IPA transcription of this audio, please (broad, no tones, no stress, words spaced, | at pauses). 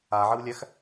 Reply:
aʕəwlʲæx